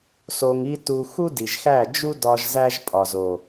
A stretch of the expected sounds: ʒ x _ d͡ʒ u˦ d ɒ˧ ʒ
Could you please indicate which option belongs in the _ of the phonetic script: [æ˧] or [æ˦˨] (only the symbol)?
æ˦˨